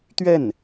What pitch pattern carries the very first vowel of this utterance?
falling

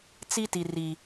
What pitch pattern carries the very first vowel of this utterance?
high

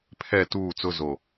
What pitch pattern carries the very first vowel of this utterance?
falling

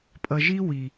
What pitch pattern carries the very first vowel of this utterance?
low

